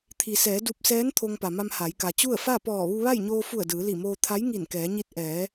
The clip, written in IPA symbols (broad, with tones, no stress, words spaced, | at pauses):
t̪ʰi˩sɛː˩˧ du˧p̚sɛː˧˥n t̪ʰo˧ŋpa˩ma˧m ha˩˧jka˩t͡ɕu˥˨ə̯ fa˥˨pɔː˧˩ ʋu˧ʋa˥˨jɲoː˧fu˧˩ə̯ dɯː˩˧li˧˩moː˧ t̪ʰa˧˥jŋi˧˩n kɛː˩˧ɲi˧˥t̚ ʔɛː˩˧